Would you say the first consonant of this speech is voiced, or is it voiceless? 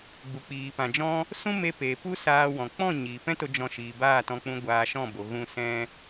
voiced